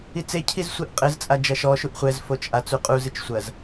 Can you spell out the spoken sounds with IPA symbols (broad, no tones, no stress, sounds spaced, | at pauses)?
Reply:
i t͡s e cʰ i z sʷ i ʔ qʼ ɘ z t͡sʼ a d͡ʒ ɐ ʃ ɔ ʃ u ʔ χʷ ɛ z f o t͡ʃ ʔ a t͡s u qʼ u z ɨ t͡ʃ sʷ ɐ z